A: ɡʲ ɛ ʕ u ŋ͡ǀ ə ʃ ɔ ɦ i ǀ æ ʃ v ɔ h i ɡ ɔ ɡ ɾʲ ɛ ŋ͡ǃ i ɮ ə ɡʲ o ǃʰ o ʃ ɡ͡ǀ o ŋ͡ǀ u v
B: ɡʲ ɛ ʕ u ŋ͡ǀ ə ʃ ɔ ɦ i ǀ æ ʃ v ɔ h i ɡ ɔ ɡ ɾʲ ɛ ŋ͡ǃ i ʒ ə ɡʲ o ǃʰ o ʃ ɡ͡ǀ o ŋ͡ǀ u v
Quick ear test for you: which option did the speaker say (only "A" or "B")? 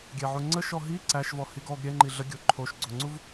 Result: A